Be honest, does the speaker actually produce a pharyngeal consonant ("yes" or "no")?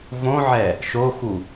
yes